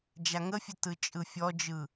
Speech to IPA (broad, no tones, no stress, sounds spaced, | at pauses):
d͡ʒ a ŋ ə fʲ ə t ɯ t͡ʃʼ ɯ fʲ ɔ d͡ʒ ɯ